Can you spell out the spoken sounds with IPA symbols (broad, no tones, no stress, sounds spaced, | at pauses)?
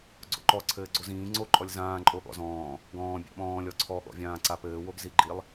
ɡ͡ǀ o̰ ǃ ɔ ǀʰ ɘː ɡ͡ǀ o z ĩː ŋ͡ǀ o ǃʼ ɔ lʲ z ãː ǃʼ o ɠ ɔ̰ z ɔ̃ː | ɡ ɔ̃ː bʲ a̰ ɓ ɔ̃ː lʲ ɔ ǀʰ ɔ ɠ ɔ̰ vʲ ãː ǀ a p ɘː w o ɡ z i ɡ͡ǃ i lˠ